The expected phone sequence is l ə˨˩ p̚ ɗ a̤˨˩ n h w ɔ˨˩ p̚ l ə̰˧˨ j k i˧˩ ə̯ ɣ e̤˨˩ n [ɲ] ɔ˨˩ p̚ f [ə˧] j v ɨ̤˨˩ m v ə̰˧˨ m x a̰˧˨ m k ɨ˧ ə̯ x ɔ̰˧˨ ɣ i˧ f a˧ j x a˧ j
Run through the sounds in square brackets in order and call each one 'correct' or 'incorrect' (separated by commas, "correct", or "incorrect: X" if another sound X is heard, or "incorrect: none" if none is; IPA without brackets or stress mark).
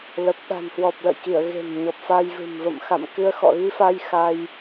correct, incorrect: a˧